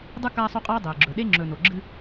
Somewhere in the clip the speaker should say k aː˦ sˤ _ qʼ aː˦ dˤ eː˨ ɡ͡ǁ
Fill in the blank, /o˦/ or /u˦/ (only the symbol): o˦